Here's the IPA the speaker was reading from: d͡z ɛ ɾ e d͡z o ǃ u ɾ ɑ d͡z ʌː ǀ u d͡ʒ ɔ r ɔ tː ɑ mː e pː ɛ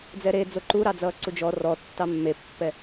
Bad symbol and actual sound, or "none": none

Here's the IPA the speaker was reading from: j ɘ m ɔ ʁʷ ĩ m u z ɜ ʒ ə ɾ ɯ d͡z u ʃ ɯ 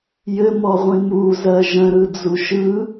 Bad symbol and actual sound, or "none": ə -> ə̃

